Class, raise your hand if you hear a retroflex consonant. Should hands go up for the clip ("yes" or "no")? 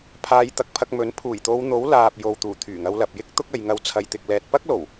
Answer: no